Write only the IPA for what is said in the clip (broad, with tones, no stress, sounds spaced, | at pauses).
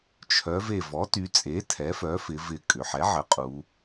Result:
t͡ʃʰ œ˩˧ v e˧˩ v ɔ˩˥ t y˩˧ t͡sʼ e˩˥ tʰ ɛ˩˥ f œ˩˥ f ɪ˩˧ v ɪ˧˩ kʼ ʏ˩˧ ħ ɛ˩˥ ʕ ə˩˥ qʼ u˩˧